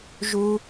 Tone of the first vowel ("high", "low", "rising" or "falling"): high